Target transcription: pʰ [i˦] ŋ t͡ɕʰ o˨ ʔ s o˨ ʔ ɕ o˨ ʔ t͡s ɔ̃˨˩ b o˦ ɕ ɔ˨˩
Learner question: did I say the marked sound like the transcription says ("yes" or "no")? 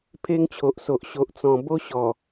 no